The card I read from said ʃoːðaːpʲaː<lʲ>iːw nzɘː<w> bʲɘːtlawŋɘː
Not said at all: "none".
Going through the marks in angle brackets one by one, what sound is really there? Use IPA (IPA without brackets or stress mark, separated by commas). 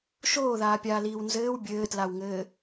l, w